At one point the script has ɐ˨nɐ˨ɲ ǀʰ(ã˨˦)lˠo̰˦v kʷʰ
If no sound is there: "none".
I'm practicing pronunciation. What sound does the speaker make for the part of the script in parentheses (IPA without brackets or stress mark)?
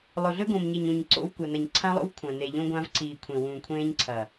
ã˦